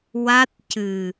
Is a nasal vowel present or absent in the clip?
absent